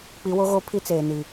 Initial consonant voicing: voiceless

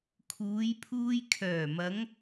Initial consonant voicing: voiceless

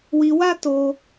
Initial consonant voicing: voiced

